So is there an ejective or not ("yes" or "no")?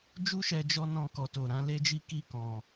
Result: no